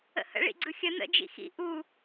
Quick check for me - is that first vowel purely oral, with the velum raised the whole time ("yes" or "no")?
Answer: yes